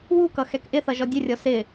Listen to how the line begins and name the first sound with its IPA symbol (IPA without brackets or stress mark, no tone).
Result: w